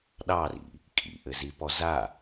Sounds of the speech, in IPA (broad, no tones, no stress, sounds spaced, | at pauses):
ɗ ɑ r ḭ | kʼ ḭ ʔ ɘ z i p ɔ z a